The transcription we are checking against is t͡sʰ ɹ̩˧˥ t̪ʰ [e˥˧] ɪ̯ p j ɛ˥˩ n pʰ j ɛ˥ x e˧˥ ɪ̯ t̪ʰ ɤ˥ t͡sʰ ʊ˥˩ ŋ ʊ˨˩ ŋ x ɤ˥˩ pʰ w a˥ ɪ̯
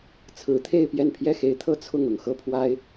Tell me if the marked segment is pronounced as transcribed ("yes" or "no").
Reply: yes